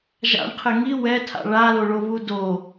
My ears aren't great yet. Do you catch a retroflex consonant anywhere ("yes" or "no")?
yes